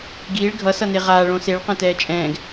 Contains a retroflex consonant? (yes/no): yes